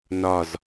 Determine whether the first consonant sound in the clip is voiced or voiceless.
voiced